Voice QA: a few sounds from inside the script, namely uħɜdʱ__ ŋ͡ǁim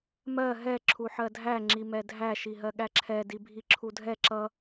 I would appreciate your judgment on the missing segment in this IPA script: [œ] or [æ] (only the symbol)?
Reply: æ